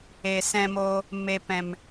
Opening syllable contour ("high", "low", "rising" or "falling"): low